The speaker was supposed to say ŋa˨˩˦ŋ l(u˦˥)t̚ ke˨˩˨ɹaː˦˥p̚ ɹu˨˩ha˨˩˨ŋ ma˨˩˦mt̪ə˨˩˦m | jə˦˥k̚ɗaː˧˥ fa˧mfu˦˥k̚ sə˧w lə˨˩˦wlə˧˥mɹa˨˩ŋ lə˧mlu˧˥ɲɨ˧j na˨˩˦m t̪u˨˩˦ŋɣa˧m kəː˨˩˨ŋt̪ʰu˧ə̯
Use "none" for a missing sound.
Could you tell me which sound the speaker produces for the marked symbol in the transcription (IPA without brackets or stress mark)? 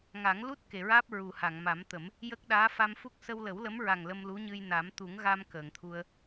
u˦˥